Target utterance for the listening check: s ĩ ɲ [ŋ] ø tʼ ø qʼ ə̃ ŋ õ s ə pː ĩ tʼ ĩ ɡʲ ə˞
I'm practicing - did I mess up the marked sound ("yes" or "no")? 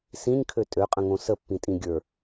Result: yes